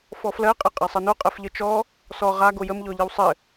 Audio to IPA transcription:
fɔflɜ qʼɘqʼasˤəno qʼɜfʎət͡ʃɔ | sɔ ʁa ɡojəm ʎɔʎɘwsˤɘ

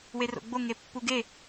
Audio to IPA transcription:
wero̰ɡ͡bo ŋepːuɡe

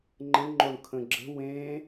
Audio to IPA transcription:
ŋ͡ǃə̃ɳŋ͡ǃoɳ kʰə̃ɡ͡ǁə̤ wẽ

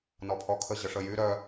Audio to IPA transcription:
nɔpʰɔkʰə ʑəʂəjy ɾœ

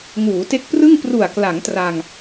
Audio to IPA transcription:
ŋuː˩˦te˦˥k̚prɯ˥˩ŋ pru˨˩a̯kla˩˦ŋ tra˧ŋ

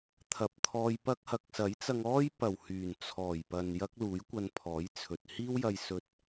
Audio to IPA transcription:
t̪ʰɐ˨p̚t̪ʰɔː˧jpɐ˥k̚ hɐ˨˥k̚sɐ˨˥jt͡sɐ˧ŋ ɔː˥jpɐ˨˩w hyː˨˩nt͡sʰɔː˨˩jpɐ˨n jɐ˥k̚luː˨˥jkʷɐ˧npʰɔː˨˥j t͡sʰɵ˨t̚ hiː˥wjɐ˧jsɵ˧t̚

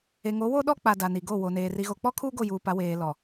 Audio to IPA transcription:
e˨ŋo˨˦wo˦ ɗɔ˦k͡pa˨ da˨ni˨ɡo˦˨ wo˨neː˨ ri˨ɣo˨k͡pɔ˦kʰuː˦ ɡo˦˨juː˨pa˨˦weː˨ lɔ˨

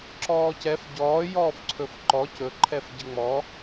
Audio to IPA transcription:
ǁɔːcɛf ɟɔː jɔːfǀʰɵfǃɔ cɵ ǃʰɛfɟəŋ͡mɔ

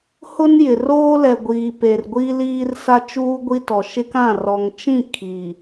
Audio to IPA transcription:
hʊ˦njɪ˨ roː˦lɛ˨ɡʷiː˨ pe˨rɡʷi˦ liː˦r sa˦t͡ʃuː˦ɡʷi˦tɔ˨ ʃɪ˦kã˦˨ rɔ˨ŋt͡ʃĩ˦˨ kʰi˨

